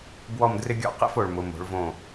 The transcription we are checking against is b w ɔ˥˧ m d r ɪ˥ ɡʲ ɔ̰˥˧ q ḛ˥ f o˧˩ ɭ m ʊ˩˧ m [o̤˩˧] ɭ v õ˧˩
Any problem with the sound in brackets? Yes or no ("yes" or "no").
no